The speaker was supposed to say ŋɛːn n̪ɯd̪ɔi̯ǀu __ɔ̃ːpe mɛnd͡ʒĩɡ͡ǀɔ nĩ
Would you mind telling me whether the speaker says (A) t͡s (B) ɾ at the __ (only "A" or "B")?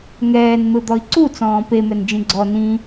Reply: A